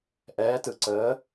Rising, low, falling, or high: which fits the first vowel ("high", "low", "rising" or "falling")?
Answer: rising